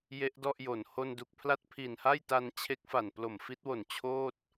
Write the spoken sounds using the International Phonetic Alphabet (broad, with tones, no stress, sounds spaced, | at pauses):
j e˦˥ ʔ d ɔ˥˩ ʔ j o˨˩ n h o˧ n d u˨˩ k̚ pʰ l a˥˩ t̚ pʰ i˨˩ n h a˥˩ j t a˧ n t͡ɕʰ e˦˥ k̚ f a˨˩ n p l o˨˩ m f i˦˥ t̚ w o˨˩ n t͡ɕʰ oː˥˩ t̚